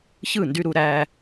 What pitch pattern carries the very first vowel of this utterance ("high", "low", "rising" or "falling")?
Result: falling